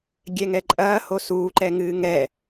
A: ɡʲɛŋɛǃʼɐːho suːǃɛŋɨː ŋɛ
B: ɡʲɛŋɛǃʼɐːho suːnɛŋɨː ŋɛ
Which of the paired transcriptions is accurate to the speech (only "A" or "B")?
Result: A